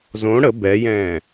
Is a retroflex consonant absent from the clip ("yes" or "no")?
no